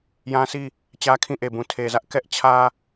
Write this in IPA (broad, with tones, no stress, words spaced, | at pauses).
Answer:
jã˦si˦˨ | t͡ɕä˦kʰĩ˦˨ʔe˨bũ˨ tʰe˨zä˦ʔ kɛ˦ʔt͡ɕʰä˦